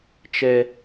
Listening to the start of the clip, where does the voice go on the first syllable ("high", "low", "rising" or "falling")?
high